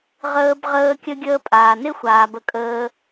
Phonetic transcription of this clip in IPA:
ʁ əː˧ b ʁ əː˧ kʲ ə˧ ɡʲ əː˧ pʼ aː˨ n ɪ˦ xʷ aː˨ b ə˧ kʼ əː˧

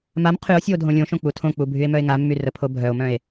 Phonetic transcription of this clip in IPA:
m a m qʰ y o̯ sʲ u o̯ dʱ õ lʲ õ ʃ õ k͡p u tʰ õ k͡p u bʱ y e̯ m œ e̯ ŋ a mː y r ə pʰ o bʱ œ o̯ m œ̃ e̯

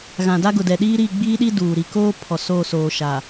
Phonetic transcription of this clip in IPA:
ɣ ã˨ d a˦ ɡ ʊ˨ d ɛ˨ ɗ iː˦ ɾ i˦˨ ɡ͡b iː˦ ɗ i˦ d uː˨ ɾ i˨ k oː˦ pʰ ɔ˨ s oː˦˨ s oː˨ ʃ a˨

